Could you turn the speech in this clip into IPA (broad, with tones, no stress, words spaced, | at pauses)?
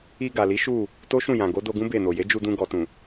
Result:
i˧ ɡa˨li˨˦ ʃu˦˨ | to˦ʃũ˦˨jã˨ ɡo˨˦do˧ɡũ˦ be˦˨no˨ je˨˦d͡ʒu˧dũ˧ ɡɔ˨tũ˨